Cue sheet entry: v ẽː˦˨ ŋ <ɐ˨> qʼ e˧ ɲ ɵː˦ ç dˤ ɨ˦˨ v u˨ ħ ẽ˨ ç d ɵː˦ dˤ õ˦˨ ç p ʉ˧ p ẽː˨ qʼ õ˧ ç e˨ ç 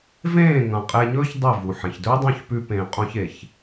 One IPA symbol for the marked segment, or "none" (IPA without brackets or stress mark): ɐ̃˨